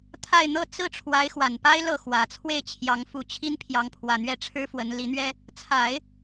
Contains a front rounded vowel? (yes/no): no